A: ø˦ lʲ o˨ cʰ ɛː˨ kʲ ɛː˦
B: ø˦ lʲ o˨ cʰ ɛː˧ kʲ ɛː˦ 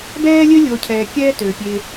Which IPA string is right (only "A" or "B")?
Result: A